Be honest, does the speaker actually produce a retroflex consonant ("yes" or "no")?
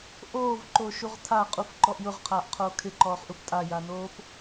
no